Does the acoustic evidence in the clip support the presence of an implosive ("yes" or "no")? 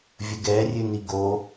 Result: no